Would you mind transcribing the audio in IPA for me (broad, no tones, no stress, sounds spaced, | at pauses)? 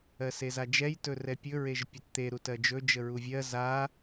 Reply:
ɜ s e z a d͡ʒ ɛ j t ɵ r ɛ pʲ ɵ ɹ e ʒ pʲ ɵ t t̪ e ɾ u t ɜ d͡ʒ ɵ d͡ʒ ə ɹ u vʲ ɜ z a